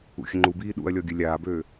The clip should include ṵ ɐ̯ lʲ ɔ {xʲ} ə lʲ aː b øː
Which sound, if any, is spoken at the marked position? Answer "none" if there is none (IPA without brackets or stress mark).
ɡʲ